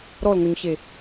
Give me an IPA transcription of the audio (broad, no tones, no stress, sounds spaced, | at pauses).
ɾ ɔ l ŋ o ɲ ɕ e